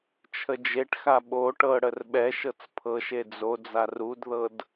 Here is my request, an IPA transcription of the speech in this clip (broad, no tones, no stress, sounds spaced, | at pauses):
t͡ʃʰ ə d͡ʒ e ʈ x a ɓ o ʈ ɤ ɽ ə r ɓ ɛ ʃ ɤ t͡s pʰ ɤ ʃ e d͡z o d͡z a r u d ð ɤ d